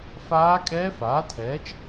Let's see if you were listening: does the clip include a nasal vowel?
no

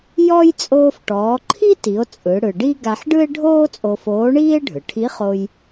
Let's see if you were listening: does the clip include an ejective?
yes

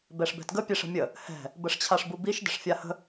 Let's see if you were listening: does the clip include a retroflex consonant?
yes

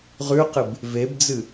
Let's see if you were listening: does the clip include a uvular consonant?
yes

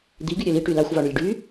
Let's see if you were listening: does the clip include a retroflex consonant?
yes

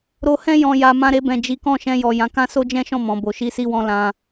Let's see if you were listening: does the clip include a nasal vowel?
yes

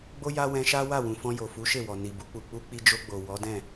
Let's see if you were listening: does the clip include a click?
no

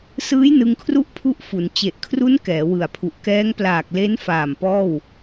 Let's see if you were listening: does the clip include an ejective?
no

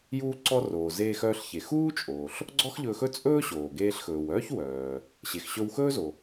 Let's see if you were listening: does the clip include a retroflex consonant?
no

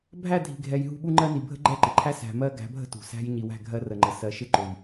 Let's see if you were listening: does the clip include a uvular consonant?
no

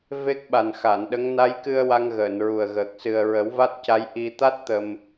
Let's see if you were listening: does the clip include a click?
no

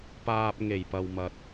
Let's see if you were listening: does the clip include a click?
no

